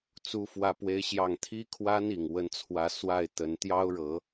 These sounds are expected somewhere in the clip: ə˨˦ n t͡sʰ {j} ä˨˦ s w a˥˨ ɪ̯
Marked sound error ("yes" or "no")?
yes